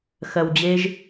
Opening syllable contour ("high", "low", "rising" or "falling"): low